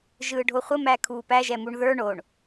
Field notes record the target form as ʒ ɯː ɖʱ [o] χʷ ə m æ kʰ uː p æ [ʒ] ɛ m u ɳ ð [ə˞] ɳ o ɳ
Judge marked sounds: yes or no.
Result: yes, yes, yes

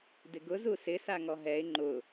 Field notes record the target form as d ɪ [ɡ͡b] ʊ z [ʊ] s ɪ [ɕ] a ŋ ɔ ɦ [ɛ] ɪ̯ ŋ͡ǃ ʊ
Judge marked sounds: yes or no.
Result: no, no, no, yes

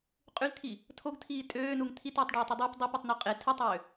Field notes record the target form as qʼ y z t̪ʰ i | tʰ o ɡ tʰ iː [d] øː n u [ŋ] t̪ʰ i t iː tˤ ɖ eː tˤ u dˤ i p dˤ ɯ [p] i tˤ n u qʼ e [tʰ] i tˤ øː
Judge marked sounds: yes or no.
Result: no, yes, yes, yes

